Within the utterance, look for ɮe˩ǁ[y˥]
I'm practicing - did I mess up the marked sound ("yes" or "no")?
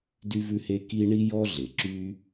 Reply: no